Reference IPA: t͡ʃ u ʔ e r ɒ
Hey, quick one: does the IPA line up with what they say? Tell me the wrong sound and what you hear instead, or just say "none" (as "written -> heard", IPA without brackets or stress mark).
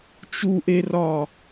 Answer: none